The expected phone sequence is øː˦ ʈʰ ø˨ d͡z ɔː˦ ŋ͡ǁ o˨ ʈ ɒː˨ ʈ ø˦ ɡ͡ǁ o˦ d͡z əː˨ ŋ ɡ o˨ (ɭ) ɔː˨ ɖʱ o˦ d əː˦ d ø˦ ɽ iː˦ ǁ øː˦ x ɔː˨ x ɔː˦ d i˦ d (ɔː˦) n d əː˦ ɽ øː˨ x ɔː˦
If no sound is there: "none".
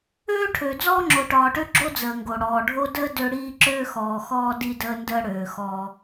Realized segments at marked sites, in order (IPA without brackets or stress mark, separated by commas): ɽ, əː˦